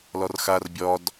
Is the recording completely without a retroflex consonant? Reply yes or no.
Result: yes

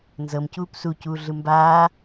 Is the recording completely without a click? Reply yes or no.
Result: yes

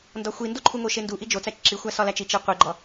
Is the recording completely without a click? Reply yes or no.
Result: no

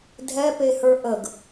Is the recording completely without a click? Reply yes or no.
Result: yes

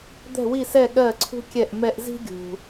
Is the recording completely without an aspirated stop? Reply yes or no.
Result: no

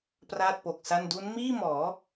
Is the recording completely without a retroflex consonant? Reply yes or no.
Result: yes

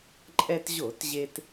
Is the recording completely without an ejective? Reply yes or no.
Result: no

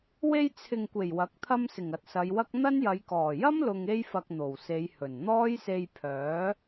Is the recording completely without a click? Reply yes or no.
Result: yes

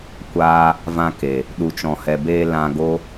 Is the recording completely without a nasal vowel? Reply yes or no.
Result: no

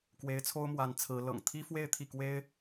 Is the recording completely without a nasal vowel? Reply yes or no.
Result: yes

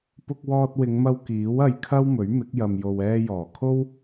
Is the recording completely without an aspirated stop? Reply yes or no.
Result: no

